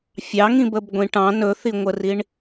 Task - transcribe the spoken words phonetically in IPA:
fʲ ɑ ŋ ĩ b ə b ɡʷ ĩ ʈ ɑ̃ n ɵ θ i ŋʷ ə r i ɳ

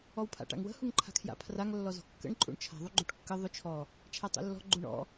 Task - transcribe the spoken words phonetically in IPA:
ɔ w pʰ a̰ ʈ a̰ ŋ w ə̤ h u ŋ ǃʰ a̤ kʰ j a̰ pʰ r a ŋ lː ɔ z ɔ̤ kː ə̰ ɳ ǃʼ ṵ ɳ t͡ʃʰ a̤ ðˤ u ɡ͡ǃ u ʈ kː ə ðˤ ʊ t͡ʃʰ ɔ | t͡ʃʰ a tˤ ṵ lː ɔ̤ ɡ͡ǃ u ɳ ɔ̰

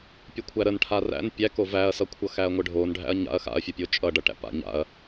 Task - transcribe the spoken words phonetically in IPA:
pʲ ə kʷʰ æ ɾ ə n ʈʰ a r æ̰ n pʲ æ k o v æ ɐ̯ s ʌ kʷʰ ʌ x æ ɐ̯ ŋʷ ə ɖʱ o n ɖʱ æ̰ ɐ̯ ɲ a̰ ɐ̯ x a̰ ɐ̯ fʲ o pʲ o t͡ʃʼ ʌ ɖ ʌ ʈ æ̰ p a̰ ɲ a̰ ɐ̯

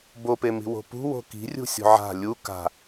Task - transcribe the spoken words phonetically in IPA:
b o p e m i̤ w o̤ p ṳ w o̤ k i̤ rʲ ṳ sʲ o̤ ʕ a̤ lʲ u k a̤

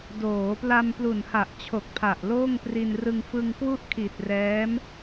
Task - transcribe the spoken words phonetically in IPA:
d oː˩˦ p l a˧ m p l u˨˩ n h a˨˩ ʔ t͡ɕʰ o˨˩ k̚ pʰ a˨˩ ʔ l oː˥˩ ŋ p r i˧ n r ɯ˧ ŋ f ɯ˧ ŋ k w u˥˩ ʔ kʰ i˨˩ t̚ r ɛː˦˥ m

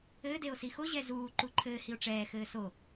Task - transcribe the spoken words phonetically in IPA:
ɘː d e o̯ s i x o ʑ ɛ z uː ǃ u ǃʰ ɘː h i o̯ ʈ͡ʂ ɛː x ɘː s o

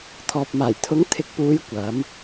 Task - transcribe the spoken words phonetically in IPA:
t̪ʰ ɔː˨ p̚ m aː˨˩ j t̪ʰ ʊ˨˥ ŋ t̪ʰ ɪ˨˥ k̚ p uː˨˧ j kʷ ɐ˨˥ m

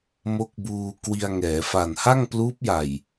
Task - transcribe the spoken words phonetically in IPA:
m o˦˥ k̚ b uː˧ k w i˧ a̯ ŋ ɛː˩˦ f a˨˩ n h a˥˩ ŋ p l uː˦˥ p̚ j a˨˩ j

